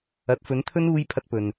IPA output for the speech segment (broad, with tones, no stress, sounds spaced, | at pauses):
ɐ˨˥ t̚ f ɵ˨˥ n t̪ʰ ɵ˥ n uː˥ j pʰ ɐ˧ t̚ p ɵ˨ n